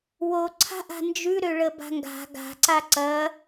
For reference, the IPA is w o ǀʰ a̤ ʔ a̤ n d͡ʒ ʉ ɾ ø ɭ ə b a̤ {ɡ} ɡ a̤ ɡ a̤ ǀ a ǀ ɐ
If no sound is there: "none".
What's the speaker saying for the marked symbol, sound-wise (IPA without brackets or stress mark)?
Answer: ŋ